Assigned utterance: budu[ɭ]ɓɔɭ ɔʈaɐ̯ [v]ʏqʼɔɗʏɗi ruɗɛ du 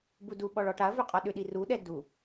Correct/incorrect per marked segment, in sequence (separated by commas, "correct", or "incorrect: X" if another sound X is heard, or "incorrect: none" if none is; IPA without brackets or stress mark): incorrect: none, correct